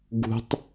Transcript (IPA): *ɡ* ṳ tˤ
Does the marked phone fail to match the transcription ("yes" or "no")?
no